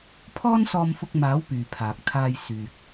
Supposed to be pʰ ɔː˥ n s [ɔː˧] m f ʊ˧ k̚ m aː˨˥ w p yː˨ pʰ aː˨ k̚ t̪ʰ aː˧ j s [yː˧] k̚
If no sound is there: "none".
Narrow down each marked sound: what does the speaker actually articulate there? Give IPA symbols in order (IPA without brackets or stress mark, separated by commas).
ɔː˧, yː˨